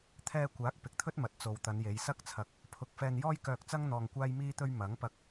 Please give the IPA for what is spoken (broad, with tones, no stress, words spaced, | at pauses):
t̪ʰɛː˧kʷaː˨˥k̚ pɪ˨k̚t̪ʰɵ˥t̚ mɐ˨t̚t͡so˨wt̪ɐ˨˧n je˨˧jsɐ˥k̚t͡sʰɐ˧k̚ | pʰʊ˧k̚ fɛː˧njɔː˥jkœː˧k̚t͡sɐ˥ŋ n̪ɔː˧ŋkʷaː˥jmiː˥t̪ɵ˥ɥ mɐ˨˥ŋpɐ˧k̚